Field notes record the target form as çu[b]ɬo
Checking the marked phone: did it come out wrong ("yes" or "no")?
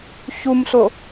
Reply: yes